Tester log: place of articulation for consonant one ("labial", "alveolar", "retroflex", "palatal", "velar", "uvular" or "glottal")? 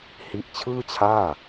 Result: glottal